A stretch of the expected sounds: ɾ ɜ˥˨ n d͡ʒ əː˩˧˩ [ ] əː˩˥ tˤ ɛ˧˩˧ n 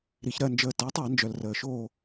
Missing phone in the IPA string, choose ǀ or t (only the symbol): t